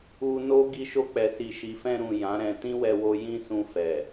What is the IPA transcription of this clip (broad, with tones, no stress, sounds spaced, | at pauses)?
u˧ n o˦ ɡ i˧ ʃ o˧ k͡p ɛ˨ s i˨ ʃ i˨ f ɛ̃˧ ɾ ũ˨ j ã˨˦ ɾ ɛ̃˧ t ĩ˦ w ɛ˧ w o˧ j ĩ˦ s ũ˧ f ɛ˨